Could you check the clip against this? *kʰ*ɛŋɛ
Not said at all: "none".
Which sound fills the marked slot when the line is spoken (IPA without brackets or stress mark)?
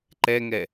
ǃ